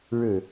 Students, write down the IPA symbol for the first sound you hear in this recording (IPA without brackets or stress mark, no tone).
ɻ